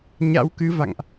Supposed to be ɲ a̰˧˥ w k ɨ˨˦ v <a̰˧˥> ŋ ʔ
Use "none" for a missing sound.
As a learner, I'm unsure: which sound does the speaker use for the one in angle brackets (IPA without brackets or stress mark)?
a̰˧˨